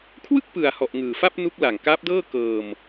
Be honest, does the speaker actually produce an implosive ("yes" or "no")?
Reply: no